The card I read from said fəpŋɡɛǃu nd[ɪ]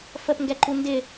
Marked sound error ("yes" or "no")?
no